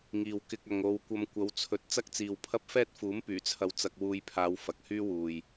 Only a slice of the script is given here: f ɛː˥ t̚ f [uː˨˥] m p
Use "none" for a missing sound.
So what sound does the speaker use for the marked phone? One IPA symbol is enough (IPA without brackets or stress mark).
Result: uː˨˥